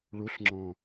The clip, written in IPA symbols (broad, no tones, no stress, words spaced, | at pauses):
ɭuɬŋ͡ǁɔ̃